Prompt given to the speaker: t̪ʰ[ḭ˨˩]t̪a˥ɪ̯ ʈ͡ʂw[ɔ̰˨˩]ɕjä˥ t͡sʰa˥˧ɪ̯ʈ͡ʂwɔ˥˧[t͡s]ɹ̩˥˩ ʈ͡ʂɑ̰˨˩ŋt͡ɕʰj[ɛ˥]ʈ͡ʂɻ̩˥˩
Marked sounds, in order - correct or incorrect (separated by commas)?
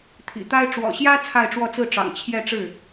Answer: correct, correct, correct, incorrect